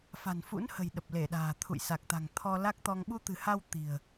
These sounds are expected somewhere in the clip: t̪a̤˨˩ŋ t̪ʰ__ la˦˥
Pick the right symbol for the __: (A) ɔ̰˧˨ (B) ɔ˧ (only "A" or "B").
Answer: B